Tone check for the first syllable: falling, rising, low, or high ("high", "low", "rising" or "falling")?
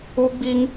high